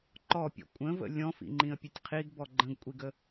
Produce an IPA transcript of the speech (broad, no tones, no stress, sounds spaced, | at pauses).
ǃ ɔ pʲ ɔ̰ kʷʼ ə̃ v ə̰ lʲ ɔ̃ f ḭ ŋ͡ǃ ĩ ə̯ pʲ ɘ tʲ qʰ i ɡ b ɔ ɡ͡ǃ ə̃ ɡ kʷʼ i ɡ ə